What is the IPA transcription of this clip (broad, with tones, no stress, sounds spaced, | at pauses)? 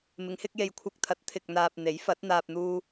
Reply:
m ɪ˨˧ ŋ h ɪ˧ k̚ j e˨ j kʷʰ ɐ˧ k̚ t̪ʰ ɐ˨˥ t̚ t̪ʰ ɪ˨ k̚ n̪ aː˨ p̚ n̪ e˨˥ j f ɐ˨˥ t̚ n̪ aː˧ p̚ n̪ uː˧